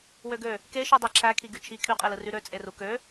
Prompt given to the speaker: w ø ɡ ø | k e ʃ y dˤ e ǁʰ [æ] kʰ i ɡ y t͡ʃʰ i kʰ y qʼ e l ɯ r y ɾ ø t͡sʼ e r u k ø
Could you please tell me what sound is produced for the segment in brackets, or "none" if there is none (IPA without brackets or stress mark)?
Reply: æ